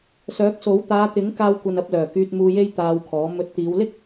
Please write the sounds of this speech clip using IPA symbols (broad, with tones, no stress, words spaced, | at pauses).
sœː˨˥k̚so˨˥w t̪aː˨˧t̪ɪ˨˥ŋ kaː˧wkʷɐ˨nɐ˨˥p̚lœː˨˩ kyː˨t̚ muː˧je˥j t̪aː˧wkʰɔː˨˥ mɵ˨˥t̚t̪iː˨˧wlɪ˥k̚